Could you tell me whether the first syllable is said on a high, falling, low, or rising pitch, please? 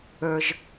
high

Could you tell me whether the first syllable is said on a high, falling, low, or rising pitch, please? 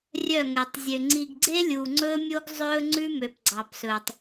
falling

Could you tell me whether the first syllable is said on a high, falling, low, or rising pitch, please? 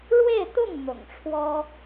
falling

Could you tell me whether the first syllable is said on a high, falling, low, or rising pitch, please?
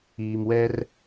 low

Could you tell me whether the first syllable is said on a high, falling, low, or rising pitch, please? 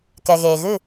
low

